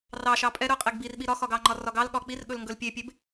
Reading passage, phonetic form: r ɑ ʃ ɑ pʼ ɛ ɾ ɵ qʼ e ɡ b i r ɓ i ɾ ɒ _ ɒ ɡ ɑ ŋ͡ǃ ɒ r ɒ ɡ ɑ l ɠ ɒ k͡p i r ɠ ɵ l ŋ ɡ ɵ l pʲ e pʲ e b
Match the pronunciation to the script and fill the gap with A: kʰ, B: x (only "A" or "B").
B